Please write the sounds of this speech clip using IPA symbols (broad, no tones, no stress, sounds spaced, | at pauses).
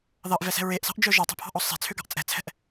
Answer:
ð ɑ ʔ v ɛ s ɛ̤ ɹ e ʔ s ɑ̤ ʔ d͡ʒ œ ʒ ɑ tˤ e̤ pʰ ɑ̤ ʔ ɔ sˤ e̤ t͡sʰ ø ɡ ɑ̤ ʔ t͡sʼ ɛ̤ t͡sʰ ɛ̤ ʔ